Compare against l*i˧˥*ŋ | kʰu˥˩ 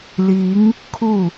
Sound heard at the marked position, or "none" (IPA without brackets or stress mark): i˧˥